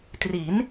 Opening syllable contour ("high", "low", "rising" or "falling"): rising